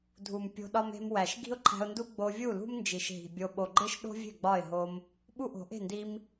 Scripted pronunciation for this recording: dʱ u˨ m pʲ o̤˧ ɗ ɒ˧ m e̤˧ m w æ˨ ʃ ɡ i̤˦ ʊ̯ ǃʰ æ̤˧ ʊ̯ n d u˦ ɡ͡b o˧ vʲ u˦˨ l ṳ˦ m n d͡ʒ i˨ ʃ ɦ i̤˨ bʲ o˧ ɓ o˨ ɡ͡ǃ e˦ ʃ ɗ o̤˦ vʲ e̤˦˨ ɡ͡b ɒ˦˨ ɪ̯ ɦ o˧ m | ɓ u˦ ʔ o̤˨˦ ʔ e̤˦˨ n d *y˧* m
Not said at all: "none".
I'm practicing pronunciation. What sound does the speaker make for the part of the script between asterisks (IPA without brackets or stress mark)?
i˧